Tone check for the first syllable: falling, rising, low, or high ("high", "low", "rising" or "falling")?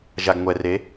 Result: low